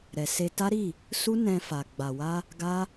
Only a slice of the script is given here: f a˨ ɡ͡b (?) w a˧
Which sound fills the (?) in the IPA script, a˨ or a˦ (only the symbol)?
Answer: a˨